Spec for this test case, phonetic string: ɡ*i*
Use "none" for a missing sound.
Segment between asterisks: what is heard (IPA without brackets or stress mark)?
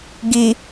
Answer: i